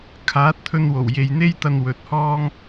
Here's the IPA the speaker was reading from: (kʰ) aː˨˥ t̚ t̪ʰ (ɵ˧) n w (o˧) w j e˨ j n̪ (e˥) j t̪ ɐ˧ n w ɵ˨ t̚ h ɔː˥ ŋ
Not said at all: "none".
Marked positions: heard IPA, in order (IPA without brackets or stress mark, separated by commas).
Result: kʰ, ɵ˧, o˨˩, e˥